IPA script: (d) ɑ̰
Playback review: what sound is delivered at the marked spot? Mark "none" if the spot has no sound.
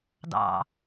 d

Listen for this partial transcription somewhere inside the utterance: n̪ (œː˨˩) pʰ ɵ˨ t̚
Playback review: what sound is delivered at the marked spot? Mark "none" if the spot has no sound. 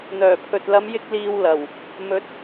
œː˨˩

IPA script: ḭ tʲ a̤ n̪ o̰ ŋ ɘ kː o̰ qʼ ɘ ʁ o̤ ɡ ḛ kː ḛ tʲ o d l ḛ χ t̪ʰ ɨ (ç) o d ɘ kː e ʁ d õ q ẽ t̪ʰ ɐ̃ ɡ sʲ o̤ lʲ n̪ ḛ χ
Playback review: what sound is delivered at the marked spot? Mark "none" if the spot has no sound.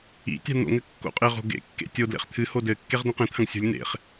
h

